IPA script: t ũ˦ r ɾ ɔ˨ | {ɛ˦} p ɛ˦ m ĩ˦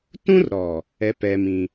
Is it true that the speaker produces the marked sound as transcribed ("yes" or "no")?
yes